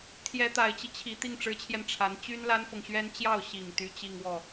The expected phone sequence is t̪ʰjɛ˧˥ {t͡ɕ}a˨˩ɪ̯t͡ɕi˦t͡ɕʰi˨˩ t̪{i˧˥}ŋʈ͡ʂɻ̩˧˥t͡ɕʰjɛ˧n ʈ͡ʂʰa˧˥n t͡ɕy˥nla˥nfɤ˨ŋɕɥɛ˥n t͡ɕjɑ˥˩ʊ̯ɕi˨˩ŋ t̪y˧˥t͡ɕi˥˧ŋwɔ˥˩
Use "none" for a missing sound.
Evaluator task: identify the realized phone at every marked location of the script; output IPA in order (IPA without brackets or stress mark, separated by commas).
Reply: t̪, i˥˩